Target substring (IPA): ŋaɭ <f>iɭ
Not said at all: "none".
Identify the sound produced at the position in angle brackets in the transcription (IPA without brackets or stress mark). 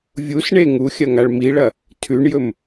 m